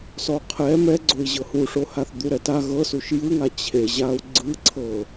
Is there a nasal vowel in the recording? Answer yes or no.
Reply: no